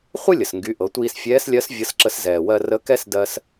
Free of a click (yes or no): no